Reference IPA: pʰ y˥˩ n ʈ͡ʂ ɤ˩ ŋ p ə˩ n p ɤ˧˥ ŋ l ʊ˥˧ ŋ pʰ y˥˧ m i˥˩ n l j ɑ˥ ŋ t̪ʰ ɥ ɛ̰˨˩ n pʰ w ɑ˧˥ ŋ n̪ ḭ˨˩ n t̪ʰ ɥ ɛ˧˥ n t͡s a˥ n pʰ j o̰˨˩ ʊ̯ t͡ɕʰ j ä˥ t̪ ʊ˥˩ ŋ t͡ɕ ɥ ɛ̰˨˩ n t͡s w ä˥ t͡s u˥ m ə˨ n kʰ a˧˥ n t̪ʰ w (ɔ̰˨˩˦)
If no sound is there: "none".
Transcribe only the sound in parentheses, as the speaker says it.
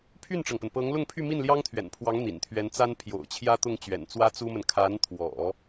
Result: ɔ̰˨˩˦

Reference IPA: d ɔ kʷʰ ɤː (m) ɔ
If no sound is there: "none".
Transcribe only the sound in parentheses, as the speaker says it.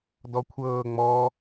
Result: ŋ͡m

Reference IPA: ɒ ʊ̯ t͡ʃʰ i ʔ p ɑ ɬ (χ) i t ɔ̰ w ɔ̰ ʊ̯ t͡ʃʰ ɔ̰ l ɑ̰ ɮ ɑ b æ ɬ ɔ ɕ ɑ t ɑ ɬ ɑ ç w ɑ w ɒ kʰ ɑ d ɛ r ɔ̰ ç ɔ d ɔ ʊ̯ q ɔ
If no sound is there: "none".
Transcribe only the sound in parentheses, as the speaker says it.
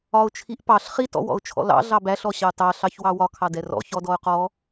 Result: χ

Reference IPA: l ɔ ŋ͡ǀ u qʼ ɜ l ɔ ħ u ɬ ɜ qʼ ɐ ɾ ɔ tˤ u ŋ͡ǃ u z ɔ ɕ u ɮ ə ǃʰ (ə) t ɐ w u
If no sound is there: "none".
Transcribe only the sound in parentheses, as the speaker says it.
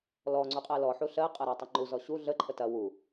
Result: ə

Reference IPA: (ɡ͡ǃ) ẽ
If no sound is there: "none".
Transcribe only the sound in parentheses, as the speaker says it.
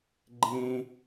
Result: ɡ͡ǃ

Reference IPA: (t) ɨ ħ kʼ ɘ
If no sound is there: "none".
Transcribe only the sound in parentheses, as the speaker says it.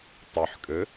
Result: tˤ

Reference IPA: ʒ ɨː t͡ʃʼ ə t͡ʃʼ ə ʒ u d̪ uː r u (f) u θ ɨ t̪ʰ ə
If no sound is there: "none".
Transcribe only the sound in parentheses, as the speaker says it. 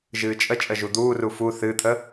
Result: f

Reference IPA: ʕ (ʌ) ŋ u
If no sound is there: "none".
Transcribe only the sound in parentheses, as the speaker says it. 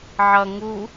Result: ʌ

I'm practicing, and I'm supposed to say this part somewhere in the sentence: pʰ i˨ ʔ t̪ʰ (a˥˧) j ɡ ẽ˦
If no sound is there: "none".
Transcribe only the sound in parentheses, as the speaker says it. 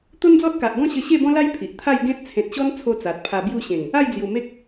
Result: a˥˧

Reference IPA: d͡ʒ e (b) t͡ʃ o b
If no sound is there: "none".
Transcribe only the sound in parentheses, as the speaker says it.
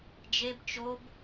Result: b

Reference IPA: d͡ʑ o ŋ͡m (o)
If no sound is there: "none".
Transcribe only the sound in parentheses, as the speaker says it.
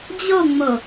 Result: o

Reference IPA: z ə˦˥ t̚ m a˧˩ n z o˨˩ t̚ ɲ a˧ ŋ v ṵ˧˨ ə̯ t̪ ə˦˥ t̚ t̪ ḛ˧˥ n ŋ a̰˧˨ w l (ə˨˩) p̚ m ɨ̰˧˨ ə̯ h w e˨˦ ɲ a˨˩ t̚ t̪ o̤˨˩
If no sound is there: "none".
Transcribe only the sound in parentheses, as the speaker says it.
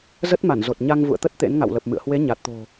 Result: ə˨˩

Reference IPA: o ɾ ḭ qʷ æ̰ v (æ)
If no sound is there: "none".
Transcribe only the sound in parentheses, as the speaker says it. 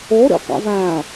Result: æ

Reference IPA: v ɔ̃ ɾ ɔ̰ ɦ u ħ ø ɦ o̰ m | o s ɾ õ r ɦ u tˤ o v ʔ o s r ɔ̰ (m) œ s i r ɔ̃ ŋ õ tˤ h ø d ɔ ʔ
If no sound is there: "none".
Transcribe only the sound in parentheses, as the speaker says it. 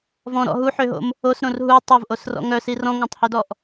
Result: ŋ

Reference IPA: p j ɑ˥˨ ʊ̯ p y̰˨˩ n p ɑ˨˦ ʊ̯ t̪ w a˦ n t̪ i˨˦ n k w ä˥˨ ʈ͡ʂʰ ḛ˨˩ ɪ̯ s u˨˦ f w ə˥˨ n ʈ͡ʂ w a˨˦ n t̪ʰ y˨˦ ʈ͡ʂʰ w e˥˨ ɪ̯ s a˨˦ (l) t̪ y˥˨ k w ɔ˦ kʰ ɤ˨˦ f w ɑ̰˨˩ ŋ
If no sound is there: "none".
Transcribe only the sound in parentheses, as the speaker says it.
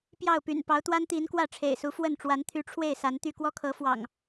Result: n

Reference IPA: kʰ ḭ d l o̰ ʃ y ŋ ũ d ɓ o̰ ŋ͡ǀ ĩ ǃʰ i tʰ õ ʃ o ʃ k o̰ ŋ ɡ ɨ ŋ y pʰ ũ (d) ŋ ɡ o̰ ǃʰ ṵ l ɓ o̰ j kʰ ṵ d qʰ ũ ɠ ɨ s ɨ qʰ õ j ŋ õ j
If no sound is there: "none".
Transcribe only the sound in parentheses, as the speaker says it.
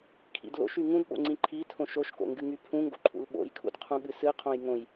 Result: none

